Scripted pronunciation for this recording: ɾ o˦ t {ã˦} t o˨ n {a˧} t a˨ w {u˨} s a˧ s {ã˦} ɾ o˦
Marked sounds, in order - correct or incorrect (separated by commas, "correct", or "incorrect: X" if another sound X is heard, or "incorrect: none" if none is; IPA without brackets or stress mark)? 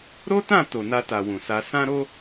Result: incorrect: ã˦˨, correct, incorrect: ũ˨, correct